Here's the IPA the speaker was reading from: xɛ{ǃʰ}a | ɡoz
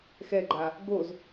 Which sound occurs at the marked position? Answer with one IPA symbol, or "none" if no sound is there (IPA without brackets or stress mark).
ɡ͡ǃ